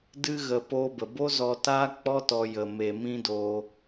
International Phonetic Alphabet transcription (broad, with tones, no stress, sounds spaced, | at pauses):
d ɨ˦ ɣ ə˧ p oː˧ b ə˨ b o˦ z ɔ˧ t aː˦ k͡p ɔ˦ t ɔ˧ j ə˨ m e˧ m ĩ˦ d o˧